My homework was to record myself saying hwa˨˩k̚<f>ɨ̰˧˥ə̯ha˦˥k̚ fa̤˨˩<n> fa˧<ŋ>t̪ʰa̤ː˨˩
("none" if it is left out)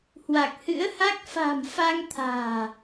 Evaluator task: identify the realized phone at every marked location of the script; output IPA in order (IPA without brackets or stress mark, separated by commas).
h, m, ŋ